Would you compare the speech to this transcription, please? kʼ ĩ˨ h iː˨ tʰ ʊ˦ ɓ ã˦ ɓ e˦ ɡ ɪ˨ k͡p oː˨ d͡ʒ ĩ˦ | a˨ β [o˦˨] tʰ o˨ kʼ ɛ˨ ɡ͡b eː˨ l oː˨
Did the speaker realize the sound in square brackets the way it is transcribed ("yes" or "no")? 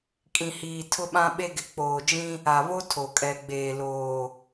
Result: no